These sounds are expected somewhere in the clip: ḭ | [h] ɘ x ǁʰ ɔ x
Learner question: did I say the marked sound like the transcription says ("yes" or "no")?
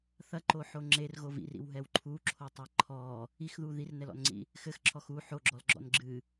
no